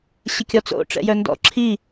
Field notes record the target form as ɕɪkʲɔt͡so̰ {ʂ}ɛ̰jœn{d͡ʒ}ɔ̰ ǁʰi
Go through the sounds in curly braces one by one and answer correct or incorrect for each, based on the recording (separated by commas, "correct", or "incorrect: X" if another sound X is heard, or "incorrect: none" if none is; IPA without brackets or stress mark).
incorrect: ʈ͡ʂ, incorrect: d